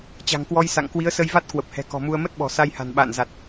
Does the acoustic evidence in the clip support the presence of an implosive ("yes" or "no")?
yes